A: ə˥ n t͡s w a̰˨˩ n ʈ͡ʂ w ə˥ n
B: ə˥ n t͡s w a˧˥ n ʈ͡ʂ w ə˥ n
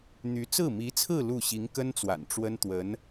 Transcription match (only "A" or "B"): A